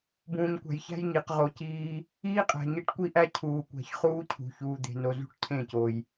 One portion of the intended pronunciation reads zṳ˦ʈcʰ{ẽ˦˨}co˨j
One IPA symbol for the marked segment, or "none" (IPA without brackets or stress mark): ẽ˦˨